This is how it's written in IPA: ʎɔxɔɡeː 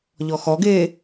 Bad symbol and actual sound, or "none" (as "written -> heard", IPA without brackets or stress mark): none